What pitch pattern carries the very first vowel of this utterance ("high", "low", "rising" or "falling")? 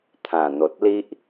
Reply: low